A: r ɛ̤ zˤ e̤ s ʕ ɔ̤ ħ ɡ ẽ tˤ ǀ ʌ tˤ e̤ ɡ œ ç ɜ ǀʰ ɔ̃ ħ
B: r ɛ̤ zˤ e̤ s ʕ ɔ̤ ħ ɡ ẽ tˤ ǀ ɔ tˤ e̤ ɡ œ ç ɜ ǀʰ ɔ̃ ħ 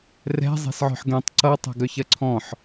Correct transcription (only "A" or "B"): A